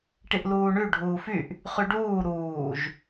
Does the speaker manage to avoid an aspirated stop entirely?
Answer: yes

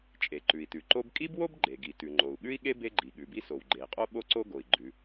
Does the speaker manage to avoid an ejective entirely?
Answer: no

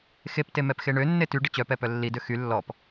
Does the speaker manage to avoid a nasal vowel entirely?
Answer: yes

